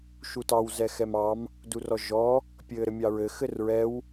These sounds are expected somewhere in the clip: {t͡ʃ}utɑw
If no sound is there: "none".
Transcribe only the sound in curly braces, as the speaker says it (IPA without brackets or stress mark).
ʃ